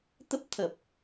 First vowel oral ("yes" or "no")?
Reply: yes